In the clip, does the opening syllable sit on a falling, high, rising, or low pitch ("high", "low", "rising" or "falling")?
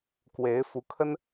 rising